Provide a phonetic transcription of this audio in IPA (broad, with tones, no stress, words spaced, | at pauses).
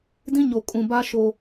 dĩ˦ɲo˨kʼũ˨ ba˦ ʃo˦